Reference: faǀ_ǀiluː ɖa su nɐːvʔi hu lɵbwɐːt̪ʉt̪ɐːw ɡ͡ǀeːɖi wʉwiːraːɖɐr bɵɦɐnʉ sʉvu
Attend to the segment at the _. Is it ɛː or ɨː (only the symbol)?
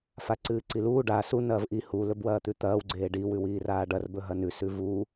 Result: ɨː